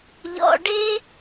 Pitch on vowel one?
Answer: low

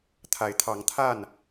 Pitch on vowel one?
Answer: rising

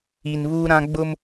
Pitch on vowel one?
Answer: low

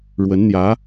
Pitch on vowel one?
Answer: rising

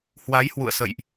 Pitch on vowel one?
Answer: rising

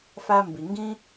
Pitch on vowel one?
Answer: high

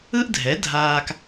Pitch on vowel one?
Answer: high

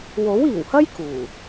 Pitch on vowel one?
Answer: rising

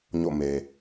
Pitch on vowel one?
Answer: falling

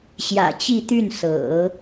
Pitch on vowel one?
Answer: low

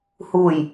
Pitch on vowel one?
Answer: low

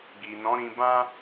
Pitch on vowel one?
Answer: low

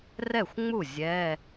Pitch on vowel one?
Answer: falling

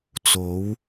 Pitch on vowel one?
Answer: rising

